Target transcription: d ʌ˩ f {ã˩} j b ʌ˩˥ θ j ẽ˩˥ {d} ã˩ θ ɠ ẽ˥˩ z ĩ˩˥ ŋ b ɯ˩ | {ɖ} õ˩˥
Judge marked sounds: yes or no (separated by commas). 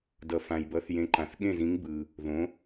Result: yes, no, no